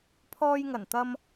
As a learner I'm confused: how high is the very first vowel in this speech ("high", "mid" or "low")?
mid